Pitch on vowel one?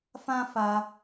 high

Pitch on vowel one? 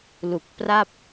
low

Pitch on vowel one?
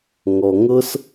low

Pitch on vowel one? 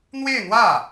falling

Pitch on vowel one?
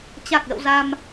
low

